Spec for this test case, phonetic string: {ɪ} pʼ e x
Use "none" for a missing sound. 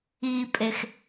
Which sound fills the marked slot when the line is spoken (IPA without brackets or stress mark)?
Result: i